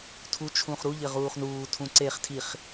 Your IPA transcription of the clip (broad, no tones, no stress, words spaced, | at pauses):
tʰu t͡ʃʰũχɾu ʎɘʁuːχnuː tʰũǀeχ tʰiχ